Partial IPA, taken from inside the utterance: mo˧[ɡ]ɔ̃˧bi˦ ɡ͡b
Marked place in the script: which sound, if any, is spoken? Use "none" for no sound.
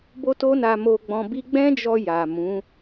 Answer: ɡ͡b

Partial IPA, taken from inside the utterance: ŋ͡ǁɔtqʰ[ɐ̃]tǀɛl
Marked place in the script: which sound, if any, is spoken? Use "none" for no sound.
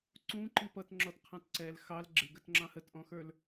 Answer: ɑ̃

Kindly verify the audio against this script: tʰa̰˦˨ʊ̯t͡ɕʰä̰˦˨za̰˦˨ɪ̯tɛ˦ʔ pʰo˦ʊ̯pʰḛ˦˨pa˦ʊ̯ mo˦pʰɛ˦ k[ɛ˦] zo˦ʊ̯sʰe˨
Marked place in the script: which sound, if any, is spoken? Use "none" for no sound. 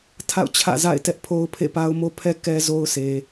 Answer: ɛ˦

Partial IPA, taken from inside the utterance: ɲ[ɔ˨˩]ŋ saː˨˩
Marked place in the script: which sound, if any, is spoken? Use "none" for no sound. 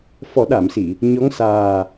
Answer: ɔ˧˥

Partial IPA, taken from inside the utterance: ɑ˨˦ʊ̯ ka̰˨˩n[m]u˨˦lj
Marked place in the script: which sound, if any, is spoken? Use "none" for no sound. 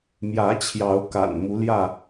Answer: m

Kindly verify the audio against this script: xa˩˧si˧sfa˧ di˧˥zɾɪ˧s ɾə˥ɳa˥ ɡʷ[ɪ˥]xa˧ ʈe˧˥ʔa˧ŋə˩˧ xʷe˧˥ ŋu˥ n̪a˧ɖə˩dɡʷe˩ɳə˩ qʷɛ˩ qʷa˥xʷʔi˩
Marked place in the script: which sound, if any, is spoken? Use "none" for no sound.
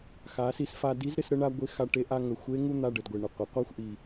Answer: ɪ˧˥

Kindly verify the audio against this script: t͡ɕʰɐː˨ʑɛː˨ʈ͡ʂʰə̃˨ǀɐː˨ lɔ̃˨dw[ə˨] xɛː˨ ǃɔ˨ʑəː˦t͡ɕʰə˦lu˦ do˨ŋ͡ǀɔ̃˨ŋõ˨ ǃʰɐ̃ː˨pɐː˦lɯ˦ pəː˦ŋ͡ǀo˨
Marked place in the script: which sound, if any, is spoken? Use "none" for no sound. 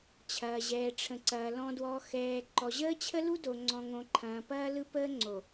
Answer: ɔ˨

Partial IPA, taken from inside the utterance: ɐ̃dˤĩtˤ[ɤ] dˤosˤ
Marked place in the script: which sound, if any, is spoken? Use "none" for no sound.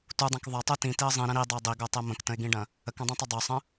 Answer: ɵ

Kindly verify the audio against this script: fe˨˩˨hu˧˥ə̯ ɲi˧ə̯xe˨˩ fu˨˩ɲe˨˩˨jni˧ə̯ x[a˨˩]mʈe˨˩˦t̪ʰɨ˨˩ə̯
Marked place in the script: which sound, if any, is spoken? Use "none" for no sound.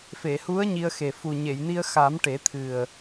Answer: a˨˩˦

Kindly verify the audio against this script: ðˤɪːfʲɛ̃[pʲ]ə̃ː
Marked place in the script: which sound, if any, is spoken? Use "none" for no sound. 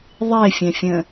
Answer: fʲ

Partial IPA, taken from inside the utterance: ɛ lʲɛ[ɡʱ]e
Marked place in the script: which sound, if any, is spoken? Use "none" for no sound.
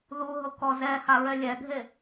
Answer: ɡʱ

